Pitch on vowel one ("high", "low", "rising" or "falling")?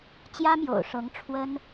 high